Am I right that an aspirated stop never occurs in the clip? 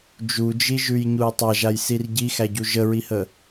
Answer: yes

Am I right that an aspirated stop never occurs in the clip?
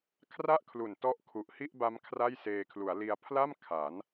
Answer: no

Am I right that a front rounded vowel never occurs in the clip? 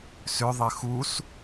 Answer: no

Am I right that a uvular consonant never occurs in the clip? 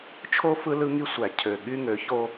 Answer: yes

